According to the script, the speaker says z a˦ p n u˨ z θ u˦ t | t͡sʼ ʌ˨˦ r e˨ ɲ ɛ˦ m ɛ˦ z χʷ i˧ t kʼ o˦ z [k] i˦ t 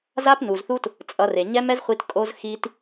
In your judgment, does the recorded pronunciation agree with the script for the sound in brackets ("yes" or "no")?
no